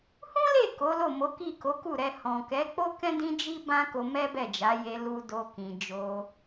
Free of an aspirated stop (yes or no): yes